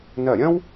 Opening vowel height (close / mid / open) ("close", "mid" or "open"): open